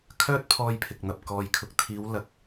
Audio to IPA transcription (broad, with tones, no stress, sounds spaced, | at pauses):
kʰ œː˥ t̚ pʰ ɔː˧ j pʰ ɪ˨ k̚ n̪ ɐ˨ p̚ k ɔː˨ j kʰ ʊ˨˥ k̚ t̪ʰ iː˨˧ w l ɐ˨˥ k̚